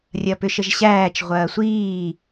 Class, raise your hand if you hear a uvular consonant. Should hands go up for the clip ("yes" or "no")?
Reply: yes